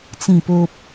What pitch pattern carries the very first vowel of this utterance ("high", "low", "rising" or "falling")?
low